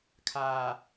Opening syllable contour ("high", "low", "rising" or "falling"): low